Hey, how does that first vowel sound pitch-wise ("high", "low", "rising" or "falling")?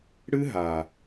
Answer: high